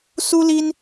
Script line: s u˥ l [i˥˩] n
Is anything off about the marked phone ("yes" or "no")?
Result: yes